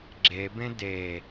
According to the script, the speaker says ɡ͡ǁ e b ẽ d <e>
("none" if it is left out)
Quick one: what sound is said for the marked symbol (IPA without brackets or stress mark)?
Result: e